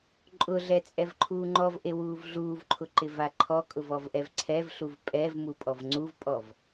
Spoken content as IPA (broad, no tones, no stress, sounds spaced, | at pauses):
ǃʼ ʊ ɮ ɛ t͡sʼ ɛ v ǃʰ uː ŋ͡ǃ ɔ v ʔ e w uː v ɮ uː v ǃʰ ʊ ǃ ɪ v a ǃʰ ɔ kʼ ʊ v ɔ v ʔ ɛ v ǀʰ ɛ v ɬ u v pʼ ɛ v m u pʼ ɔ v ŋ͡ǀ u v pʼ ɔ v